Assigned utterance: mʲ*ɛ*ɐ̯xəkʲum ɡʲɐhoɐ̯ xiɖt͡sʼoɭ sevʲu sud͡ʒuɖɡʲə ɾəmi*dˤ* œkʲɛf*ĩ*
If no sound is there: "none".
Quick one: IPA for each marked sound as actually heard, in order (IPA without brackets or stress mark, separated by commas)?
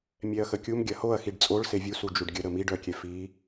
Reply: ɛ, ɖ, i